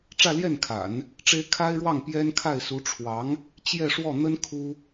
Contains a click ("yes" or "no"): no